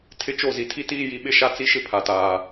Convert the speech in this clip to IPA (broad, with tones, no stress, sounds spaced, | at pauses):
tʰ ɪ˦ t͡ʃ o˦˨ z i˨ tʰ i˦ t iː˦ j i˨ ɓ ɪ˦ ʃ a˦ t͡s i˦ ʃ ɪ˦ pʰ a˨ t aː˨